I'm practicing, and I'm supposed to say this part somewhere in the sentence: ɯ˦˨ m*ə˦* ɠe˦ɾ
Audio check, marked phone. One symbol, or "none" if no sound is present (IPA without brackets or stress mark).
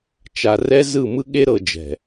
ɯ˦